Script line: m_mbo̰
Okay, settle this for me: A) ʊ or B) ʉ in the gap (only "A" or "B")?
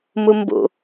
A